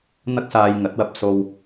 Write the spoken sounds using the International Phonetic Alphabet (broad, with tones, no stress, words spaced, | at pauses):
n̪ɐ˥k̚saː˧j ŋɐ˨˥t̚wɐ˨p̚ so˧w